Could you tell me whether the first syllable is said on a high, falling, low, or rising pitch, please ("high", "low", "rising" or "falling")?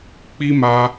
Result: high